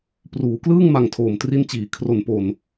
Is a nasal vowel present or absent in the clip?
absent